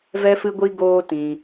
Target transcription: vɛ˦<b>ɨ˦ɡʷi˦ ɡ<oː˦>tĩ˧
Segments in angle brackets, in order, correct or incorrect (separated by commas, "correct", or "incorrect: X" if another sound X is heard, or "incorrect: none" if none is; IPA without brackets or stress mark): incorrect: f, correct